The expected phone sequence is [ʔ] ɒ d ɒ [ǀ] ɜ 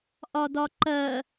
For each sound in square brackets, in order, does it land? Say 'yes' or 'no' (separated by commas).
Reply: yes, no